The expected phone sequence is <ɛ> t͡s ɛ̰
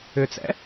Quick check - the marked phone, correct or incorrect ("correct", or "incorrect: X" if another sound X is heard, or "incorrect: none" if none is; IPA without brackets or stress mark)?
incorrect: ʏ